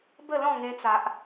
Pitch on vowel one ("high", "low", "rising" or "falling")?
falling